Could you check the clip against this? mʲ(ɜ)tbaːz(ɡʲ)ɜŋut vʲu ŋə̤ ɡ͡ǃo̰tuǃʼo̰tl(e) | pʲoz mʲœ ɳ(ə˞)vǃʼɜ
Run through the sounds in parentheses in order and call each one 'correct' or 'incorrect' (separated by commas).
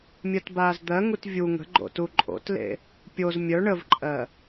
correct, incorrect, incorrect, incorrect